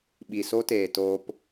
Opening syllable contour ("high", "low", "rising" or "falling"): low